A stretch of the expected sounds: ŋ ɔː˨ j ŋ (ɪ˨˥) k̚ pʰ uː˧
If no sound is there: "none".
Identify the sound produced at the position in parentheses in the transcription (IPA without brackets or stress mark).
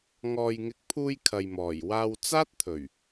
ɪ˨˥